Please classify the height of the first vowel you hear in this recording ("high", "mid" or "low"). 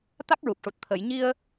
low